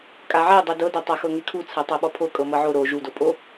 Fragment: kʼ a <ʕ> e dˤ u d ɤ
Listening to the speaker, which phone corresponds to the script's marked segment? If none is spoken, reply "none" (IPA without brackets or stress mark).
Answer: ʕ